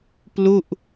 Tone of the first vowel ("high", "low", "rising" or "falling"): falling